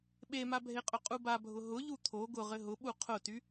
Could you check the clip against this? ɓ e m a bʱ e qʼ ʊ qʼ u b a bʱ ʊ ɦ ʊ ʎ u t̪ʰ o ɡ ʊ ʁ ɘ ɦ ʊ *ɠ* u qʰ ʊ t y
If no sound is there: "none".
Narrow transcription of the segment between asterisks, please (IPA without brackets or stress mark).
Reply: ɓ